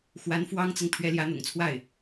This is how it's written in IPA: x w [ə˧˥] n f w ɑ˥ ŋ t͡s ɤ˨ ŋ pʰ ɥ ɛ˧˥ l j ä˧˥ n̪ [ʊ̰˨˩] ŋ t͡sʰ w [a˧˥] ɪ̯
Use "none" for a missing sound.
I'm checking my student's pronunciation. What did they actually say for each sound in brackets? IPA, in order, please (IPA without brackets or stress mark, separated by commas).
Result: a˧˥, ʊ̰˨˩, a˥˩